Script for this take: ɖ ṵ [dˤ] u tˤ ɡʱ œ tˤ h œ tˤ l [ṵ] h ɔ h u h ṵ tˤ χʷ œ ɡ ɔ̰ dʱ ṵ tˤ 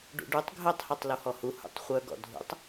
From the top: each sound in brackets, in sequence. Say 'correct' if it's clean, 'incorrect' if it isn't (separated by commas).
incorrect, incorrect